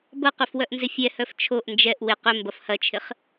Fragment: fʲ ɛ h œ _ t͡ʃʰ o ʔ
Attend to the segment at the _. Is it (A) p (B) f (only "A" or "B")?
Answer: B